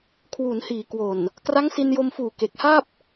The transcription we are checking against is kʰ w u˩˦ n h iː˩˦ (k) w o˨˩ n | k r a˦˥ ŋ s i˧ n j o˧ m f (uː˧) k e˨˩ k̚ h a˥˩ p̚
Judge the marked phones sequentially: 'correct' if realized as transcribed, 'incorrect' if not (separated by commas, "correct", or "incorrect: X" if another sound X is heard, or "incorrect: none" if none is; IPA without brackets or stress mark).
correct, incorrect: uː˨˩